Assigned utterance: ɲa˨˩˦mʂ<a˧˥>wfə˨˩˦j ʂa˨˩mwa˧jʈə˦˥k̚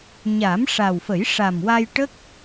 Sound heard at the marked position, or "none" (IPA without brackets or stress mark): a˨˩